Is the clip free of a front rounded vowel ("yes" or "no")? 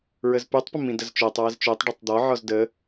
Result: no